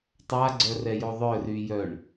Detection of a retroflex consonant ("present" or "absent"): present